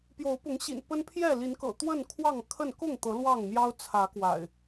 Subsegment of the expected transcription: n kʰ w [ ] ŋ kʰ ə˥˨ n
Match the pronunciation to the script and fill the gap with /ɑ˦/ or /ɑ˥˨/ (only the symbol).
ɑ˥˨